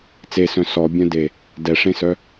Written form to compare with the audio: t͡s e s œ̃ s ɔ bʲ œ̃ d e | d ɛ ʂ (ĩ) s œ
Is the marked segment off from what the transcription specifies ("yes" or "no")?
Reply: yes